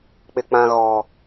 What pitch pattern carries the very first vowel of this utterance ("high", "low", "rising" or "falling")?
low